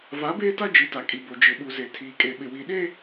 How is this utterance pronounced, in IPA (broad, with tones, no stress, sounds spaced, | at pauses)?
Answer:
v a˨˦ b eː˦ t a˦ d͡ʒ i˨˦ t a˨ kʼ i˨ b o˨ d͡ʒ ɪ˨ ɓ u˨ z e˨ tʰ iː˨ kʼ e˨ ɓ ɪ˨ w i˨ ɗ eː˦